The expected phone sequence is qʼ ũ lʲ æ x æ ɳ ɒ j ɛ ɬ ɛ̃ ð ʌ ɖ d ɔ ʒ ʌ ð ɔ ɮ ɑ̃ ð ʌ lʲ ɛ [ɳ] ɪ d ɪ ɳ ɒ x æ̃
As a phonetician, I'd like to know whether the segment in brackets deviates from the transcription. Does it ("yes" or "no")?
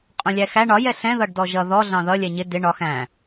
yes